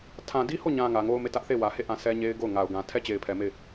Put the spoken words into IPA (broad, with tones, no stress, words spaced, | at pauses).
tʰã˨di˦ho˦˨ɲã˨ ŋä˨ŋo˦ʊ̯me˦˨ tä˦ʔθe˦˨wä˨he˦˨ ʔã˦˨sɛ˦ ɲe˦ɪ̯ɡo˦˨ʊ̯ ŋa˨ʊ̯ ɡã˨tʰɛ˦ t͡ɕe˨ɪ̯pʰɛ˨ me˦˨ɪ̯